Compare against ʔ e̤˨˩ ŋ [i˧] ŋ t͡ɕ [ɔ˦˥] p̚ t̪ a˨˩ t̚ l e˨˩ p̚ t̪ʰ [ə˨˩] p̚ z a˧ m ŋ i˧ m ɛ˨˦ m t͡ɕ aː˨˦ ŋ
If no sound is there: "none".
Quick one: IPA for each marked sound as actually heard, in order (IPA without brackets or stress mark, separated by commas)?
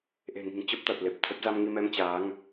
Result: i̤˨˩, ə˦˥, ə˦˥